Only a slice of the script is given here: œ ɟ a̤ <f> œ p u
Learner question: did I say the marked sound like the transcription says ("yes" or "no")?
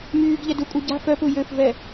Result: yes